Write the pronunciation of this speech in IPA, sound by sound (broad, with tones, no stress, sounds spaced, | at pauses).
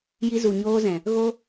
j i˧ z u˨ ɲ oː˧ z ɛ̃˨ | ɣ o˦